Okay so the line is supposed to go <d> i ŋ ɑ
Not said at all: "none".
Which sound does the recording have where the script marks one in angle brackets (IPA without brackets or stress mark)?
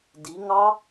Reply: d